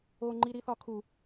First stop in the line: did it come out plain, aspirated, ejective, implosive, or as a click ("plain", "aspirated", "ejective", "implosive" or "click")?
click